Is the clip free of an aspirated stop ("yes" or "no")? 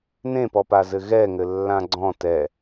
yes